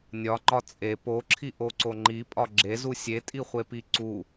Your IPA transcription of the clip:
nʲ ɒ ŋ͡ǃ ɒ t͡sʼ e p o ǁʰ i ʔ o ǀ o ŋ͡ǃ i pʼ ɒ ɡ͡ǁ e z u sʲ e tʼ i χʷ e p i ǀ u

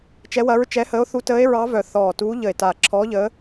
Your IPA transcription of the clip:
t͡ʃ ɛ˧˥ w ɐ˧˥ ɹ t͡ʃ ɛ˧˥ h əː˧˥ o̯ θ u˧˥ t əː˧˥ e̯ ɹ ɑ˧˥ v œ˧˩ θ ɔː˧˩ t uː˧˥ ʎ ə˧˩ e̯ t a˧˩ ǁʰ ɔː˧˥ ʎ əː˧˥

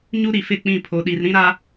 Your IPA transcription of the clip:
ɲ u˦ ɾ i˨ f ɪ˦˨ k͡p ĩ˦˨ pʰ o˨ ɗ i˨ r ɾ ĩ˦ ɾ a˦

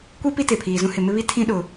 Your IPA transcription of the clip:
kʷ i˦ p i˦ t e˨ pʰ iː˨ z ũ˦ h ɪ˨ m ɪ˦ β i˦ tʰ ĩ˦ ɗ ʊ˨

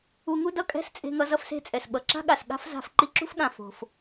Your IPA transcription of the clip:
u˧ ŋ u˥ d ʌ˥ kʼ ɛ̤˥ s t͡sʼ e̤˧ ŋ ʌ˧ z ʌ˧ f s e̤˧ t͡sʼ ɛ˩ s ɓ ʌ˩ ǁ a̤˥ ɠ a˩ s ɠ a̤˥ f z a̤˧ f ǃ i˧ ǁ ṳ˥ f ɠ ã˩ f o̤˩ f

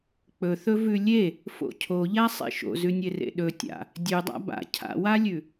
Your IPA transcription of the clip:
k͡p ɵ θ ɵ v ʉ lʲ e | f o̰ cʰ o ʎ a sˤ ḛ ʃ o̰ z ʉ nʲ e r ḛ ɗ ɵ tʲ a̰ | dʲ ʉ dˤ a̰ b a̰ cʰ a̰ w a lʲ ʉ

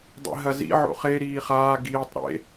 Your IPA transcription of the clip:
dˤ ḭ ɦ ɐ z ḭ ʕ o̰ χ e ɾ iː χ aː ɡ iː tˤ ɾ ḛ

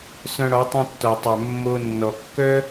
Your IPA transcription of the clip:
s œ̃˧ ɽ ɔ˨˦ tˤ œ̃˧ tː ɔ˨ tˤ œ˨ mː o˧ nː ɔ˨ kː œ˦

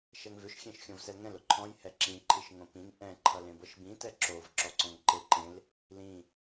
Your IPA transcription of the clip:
ʃ ɛ ŋ v ʏ ʃ xʲ ẽ ʃ xʲ õ v s ɛ l ŋ ɛ̃ l ʊ ǃʰ ɔ̃ j h ɛ ǁ ĩ ǃʰ i ʃ ŋ õ p ĩ ŋ ʔ ɛ̃ ǃʰ ʌ l ẽ b ɤ ʃ b ĩ t ɛ ǁ o v ǁ ɔ ǀ ɔ̃ ŋ ǃ e ǃ ẽ l | l ĩ

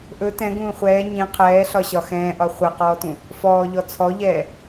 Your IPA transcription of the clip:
ʔ ɵ t ɛ̃ ɡ ũː χʷ ɛː ɲ ĩ qʰ ɛː ɬ ɒ ɕ ɒ x ɛ̃ː ʔ ɒ χʷ ɛ q ɔː t ũ | f ɔː ʎ ɔ t͡sʰ ɔ ʎ ɛː

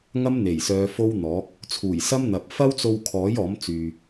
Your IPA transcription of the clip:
ŋ ɐ˥ m n̪ e˨˩ j s œː˨˧ f o˥ w n̪ ɔː˨˥ k̚ | t͡sʰ uː˨˩ j s ɐ˥ m n̪ ɐ˨ p̚ f ɐ˥ w t͡s o˧ w kʰ ɔː˨˥ j ɔː˨˥ m t͡s yː˨

